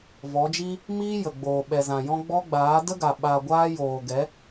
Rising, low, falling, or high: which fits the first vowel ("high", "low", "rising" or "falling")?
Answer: rising